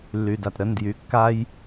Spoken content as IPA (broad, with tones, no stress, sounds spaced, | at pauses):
lː y˩ d a˩ t ɾ ə˩˧˩ n d j y˩˧˩ kː a˦ j